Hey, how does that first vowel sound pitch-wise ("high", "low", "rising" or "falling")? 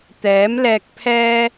rising